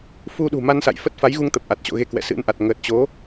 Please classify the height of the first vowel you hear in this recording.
high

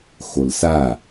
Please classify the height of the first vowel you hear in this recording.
mid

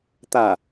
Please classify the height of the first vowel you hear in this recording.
low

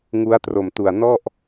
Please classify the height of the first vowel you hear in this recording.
high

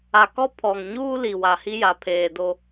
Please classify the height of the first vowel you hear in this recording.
low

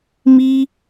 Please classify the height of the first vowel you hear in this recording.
high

